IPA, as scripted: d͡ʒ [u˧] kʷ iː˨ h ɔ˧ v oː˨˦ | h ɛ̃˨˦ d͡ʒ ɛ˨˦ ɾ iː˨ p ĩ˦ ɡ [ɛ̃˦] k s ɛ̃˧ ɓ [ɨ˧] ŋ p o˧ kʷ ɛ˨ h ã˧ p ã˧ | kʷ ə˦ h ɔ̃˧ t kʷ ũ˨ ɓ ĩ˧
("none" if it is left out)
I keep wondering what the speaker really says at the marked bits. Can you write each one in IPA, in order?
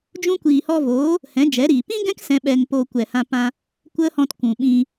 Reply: ũ˧, ɛ̃˦, ɛ˧

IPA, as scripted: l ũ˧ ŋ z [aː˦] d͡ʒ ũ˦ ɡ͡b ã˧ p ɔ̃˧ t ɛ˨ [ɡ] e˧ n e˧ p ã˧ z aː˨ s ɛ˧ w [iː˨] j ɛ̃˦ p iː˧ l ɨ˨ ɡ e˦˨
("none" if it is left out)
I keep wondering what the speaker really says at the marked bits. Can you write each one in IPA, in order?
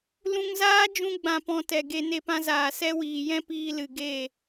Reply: aː˦, ɡ, iː˨

